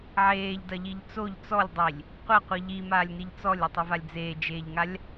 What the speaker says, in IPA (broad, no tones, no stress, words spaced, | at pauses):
ʕeːʎdɐʎiʎ t͡soʎ t͡sɔlʲdˤilʲ | qʷaqʷi ʎimaːlʲniʎ t͡sɔlʲɐtˤɘvalʲ d͡zeːd͡ʒeːʎŋalʲ